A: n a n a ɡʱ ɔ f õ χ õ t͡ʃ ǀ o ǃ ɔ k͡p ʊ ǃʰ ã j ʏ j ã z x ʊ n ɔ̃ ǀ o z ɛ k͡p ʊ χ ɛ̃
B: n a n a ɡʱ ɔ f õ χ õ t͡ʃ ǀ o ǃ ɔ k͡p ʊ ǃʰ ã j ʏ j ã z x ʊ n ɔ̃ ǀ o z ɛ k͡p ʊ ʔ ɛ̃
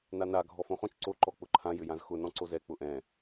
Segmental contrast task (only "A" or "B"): B